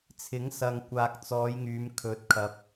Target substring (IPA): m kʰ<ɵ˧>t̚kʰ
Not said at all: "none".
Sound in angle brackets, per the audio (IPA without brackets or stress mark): ɵ˨˥